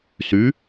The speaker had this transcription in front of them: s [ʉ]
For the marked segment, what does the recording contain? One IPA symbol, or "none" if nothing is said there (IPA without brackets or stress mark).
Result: ʉ